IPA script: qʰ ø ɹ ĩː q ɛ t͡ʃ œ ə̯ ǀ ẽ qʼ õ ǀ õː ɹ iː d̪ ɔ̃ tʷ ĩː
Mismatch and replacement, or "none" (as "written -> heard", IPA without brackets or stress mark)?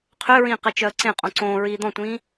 none